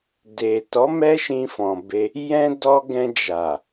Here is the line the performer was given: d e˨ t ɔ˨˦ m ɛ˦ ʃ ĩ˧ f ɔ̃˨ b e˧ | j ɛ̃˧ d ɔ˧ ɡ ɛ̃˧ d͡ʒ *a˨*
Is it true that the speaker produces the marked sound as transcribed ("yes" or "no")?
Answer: yes